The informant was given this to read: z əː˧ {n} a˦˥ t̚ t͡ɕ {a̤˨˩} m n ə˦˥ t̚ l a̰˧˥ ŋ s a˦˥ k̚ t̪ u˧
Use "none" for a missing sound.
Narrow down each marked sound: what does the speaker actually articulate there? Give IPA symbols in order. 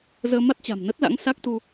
m, a̤˨˩

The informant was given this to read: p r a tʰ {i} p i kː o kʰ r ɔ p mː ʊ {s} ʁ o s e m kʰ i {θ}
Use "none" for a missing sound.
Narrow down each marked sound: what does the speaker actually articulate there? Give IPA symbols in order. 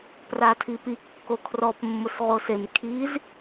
i, s, z

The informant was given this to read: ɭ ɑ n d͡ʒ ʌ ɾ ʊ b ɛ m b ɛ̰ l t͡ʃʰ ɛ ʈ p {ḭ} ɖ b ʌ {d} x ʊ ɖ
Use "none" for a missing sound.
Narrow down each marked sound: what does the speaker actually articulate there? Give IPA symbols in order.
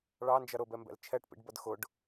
ḭ, d

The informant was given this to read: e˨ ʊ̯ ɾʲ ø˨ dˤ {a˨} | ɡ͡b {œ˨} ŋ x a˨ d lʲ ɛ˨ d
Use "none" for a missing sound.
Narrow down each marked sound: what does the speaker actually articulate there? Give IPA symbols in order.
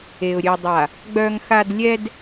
a˨, œ˨

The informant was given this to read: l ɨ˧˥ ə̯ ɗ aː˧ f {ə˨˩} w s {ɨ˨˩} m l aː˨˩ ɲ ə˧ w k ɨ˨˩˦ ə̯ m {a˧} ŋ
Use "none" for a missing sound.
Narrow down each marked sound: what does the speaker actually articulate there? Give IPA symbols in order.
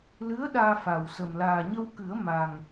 a˨˩, ə˨˩, a˨˩

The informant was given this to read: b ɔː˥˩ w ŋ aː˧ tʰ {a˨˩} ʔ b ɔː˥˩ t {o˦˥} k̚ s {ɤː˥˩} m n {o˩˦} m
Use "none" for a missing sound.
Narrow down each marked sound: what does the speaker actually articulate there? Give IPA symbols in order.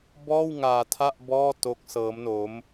a˥˩, o˦˥, ɤː˦˥, o˦˥

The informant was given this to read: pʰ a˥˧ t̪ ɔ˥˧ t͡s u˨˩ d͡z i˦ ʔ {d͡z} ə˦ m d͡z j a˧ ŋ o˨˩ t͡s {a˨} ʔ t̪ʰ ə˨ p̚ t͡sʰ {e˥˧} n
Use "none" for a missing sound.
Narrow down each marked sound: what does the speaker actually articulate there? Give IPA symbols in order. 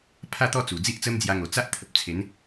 t͡s, a˦, e˨˦

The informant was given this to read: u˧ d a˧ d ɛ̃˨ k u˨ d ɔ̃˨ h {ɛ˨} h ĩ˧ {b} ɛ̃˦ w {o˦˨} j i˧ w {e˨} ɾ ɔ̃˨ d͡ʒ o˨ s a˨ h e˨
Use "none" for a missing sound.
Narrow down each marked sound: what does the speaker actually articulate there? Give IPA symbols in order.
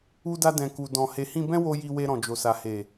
e˨, b, o˧, e˧

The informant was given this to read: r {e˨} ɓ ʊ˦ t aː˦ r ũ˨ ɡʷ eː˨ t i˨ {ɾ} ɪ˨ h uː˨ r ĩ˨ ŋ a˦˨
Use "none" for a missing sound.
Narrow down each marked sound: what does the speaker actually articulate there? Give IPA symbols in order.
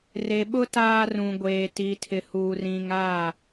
e˨, tʰ

